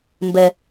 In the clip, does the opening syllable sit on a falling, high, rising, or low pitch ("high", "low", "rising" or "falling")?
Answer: high